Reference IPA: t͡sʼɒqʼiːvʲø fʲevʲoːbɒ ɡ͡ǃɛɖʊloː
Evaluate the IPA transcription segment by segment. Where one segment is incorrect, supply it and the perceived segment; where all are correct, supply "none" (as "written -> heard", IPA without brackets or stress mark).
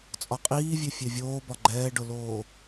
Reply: ɛ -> ɛː